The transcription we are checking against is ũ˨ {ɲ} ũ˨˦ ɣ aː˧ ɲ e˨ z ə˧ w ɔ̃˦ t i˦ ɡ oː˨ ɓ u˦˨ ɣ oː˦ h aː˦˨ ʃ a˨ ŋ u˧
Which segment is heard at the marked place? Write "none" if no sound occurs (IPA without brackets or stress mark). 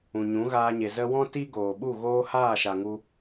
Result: ɲ